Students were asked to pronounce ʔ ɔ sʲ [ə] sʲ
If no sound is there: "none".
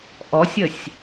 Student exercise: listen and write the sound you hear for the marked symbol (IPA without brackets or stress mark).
ə